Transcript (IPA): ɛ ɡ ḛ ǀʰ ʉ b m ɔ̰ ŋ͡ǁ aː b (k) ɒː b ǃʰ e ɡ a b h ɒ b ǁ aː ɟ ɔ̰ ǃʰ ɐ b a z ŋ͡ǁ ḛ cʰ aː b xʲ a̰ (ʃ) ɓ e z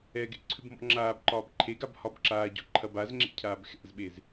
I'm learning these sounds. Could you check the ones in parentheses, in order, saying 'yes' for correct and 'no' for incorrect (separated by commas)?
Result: no, no